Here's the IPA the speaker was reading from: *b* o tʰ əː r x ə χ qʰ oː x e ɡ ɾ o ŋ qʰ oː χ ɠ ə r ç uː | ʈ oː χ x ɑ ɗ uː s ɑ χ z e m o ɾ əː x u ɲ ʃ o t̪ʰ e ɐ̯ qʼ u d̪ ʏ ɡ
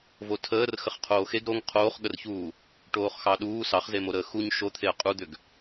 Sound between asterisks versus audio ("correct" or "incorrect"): incorrect